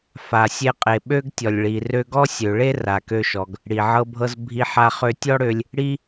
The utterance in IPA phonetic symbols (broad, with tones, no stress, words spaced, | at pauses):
fa˩sʲe˧qʼe˩ ɓø˥ɡtʲɔ˩lʲ ɭi˩ rø˧ɡɔ˥ sʲø˩ɭe˥ ra˩kø˧ʃɔ˩ɡ | ɽi˩ʕɤ˧bʱɤ˧z bʱi˧ħa˧ χø˧ tʲɔ˥ɽø˧lʲ | ɽi˥